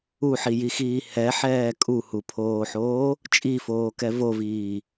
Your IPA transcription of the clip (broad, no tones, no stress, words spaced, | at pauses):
uħijixiː hɛħɛː kʼuhupʰoːħoː | t͡ʃʼifoːkɛ voviː